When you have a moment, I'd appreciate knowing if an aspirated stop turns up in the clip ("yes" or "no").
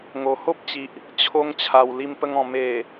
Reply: yes